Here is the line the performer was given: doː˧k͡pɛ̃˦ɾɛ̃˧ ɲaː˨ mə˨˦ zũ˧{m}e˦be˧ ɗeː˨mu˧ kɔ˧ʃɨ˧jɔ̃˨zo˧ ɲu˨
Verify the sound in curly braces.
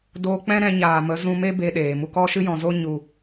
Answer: correct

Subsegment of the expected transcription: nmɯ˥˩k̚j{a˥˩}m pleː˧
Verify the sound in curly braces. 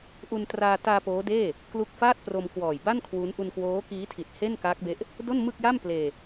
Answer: correct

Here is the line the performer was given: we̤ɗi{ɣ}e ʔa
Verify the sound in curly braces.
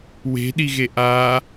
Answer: correct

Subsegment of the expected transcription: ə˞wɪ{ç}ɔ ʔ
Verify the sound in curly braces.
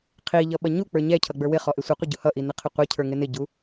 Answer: incorrect: χ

